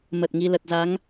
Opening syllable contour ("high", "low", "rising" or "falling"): low